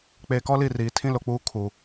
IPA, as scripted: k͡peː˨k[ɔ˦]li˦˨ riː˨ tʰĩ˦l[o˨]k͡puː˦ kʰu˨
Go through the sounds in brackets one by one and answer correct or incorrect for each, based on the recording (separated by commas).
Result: correct, correct